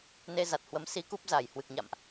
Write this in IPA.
n e˧ z a˨˩ t̚ h w ə˨˦ m s i˧ k u˦˥ p̚ z a˧˩ j h w ɨ˨˩ k̚ ɲ a̰˧˨ m ʔ

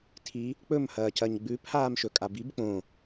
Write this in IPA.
tʰ i | k͡p ɵ m h ɐː c ɐ ɲ ɡ͡b ʉ pʰ aː m ʃ ɵ kʼ a b i b k͡p õ

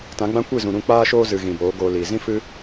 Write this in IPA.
t ã˨˦ ɡ͡b ã˦ kʷ i˦˨ z ũ˨ ɾ ũ˧ k͡p aː˦ ʃ oː˦ z ɨ˨ ɣ ĩ˨ b oː˨˦ ɡ oː˧ l iː˨ z ĩ˦ f ɨ˦

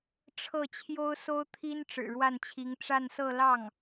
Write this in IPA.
ʈ͡ʂʰ ɤ˥˩ t͡ɕʰ j o˥ ʊ̯ s o˥ ʊ̯ t̪ʰ i˥ n ʈ͡ʂ ɻ̩˨˩ ɻ w a˥˩ n t͡ɕʰ i˧˥ ŋ ʈ͡ʂ a˥˧ n s ɤ˥˧ l ɑ˥˩ ŋ

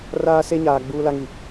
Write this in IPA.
r aː˦ s e˦ ɲ aː˨ ɡ͡b uː˦ l a˦ ŋ i˨

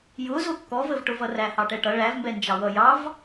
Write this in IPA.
j ʊ z ʊ kː ɔ v ə v ʈ ʊ v ʌ r æ h ɑ ʈ ɛ ʈ ʌ ɭ æ v m b ɛ n d͡ʒ ɑ w ʌ j ɑ v

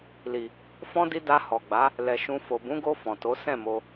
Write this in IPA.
l i˨ | f ɔ̃˧ d i˧ d a˧ h ɔ˨ ɡ͡b a˨˦ | l ɛ˨ ʃ ũ˧ f o˨ b ũ˨˦ ɡ o˧ f ɔ̃˨ t o˨˦ s ɛ̃˦˨ m o˧

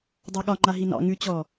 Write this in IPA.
dˤ ɑ ɠ ɒ ŋ͡ǃ a ɦ i n ɑ̰ ŋ ʉ t͡ɕ ɔ

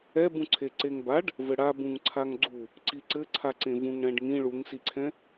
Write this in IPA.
ɛ b ũ ǀʰ e ǀ e ŋ b a ɖ | v ɘ ɽ a b ũ ŋ ǀʰ a ŋ ɡ͡ǀ u | ǀ i ǀ ɘ ǀʰ a ǀ ẽ v ũ ŋ ɽ ɛ̃ ɖ ŋ ĩ ɭ u ŋ s i ǀʰ ɛ̃

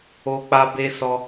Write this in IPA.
o˦ k͡p a˦ b e˦ s ɔ˦

